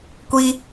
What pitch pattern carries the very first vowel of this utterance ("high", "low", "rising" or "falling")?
high